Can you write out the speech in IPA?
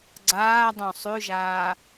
ɡ͡ǀ aː dˤ õ sˤ ʉ ʒ aː

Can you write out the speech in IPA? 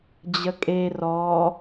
d͡ʑ ə kʼ e r ɔ

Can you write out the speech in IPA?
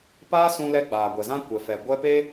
p aː˦ s ũ˧ l ɛ˧ ɡ͡b aː˨ ɡʷ ɛ˨ z ã˦ kʷ ɛ˨ f ɛ˨ ɡʷ ɛ˧ p e˦

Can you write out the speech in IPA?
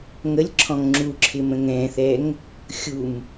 ŋ ə lʲ ǁʰ ɔ̃ ŋ ŋ͡ǁ u ǁʰ ɪ m ə̃ ŋ ɛ̃ θ ɛ ŋ | xʲ u m

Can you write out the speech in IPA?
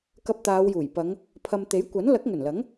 k ɐ˧ p̚ t̪ aː˨˧ w j uː˨˩ j p ɐ˨˧ ŋ | pʰ ɐ˨ m t̪ e˨˥ j kʷ ɐ˨˥ n l ɐ˨˥ k̚ ŋ ɵ˨˩ n l ɐ˨˥ ŋ

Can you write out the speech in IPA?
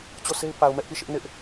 t͡ɕ o˦˨ s e˦ ɪ̯ p a˨ ʊ̯ m ɛ˦ ʔ p i˦˨ ʃ ɪ˦ ʔ n ɪ˦ ʔ

